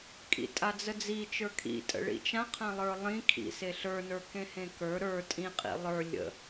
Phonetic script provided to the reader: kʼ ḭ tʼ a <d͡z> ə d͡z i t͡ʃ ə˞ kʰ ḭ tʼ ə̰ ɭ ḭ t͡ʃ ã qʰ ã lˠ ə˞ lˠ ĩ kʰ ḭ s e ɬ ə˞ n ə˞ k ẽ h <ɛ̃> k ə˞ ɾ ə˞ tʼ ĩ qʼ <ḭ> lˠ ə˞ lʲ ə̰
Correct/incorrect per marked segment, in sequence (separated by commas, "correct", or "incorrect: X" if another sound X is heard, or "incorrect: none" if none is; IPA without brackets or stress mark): correct, incorrect: ẽ, correct